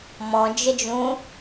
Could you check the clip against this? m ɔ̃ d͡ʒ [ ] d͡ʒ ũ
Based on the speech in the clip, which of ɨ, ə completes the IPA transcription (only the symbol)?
ə